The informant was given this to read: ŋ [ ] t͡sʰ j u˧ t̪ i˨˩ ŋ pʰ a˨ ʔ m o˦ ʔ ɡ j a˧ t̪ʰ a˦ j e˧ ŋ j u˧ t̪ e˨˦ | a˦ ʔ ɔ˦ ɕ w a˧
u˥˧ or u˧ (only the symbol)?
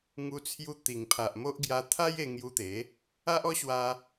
u˧